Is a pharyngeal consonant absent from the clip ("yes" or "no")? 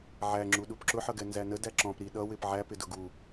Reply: no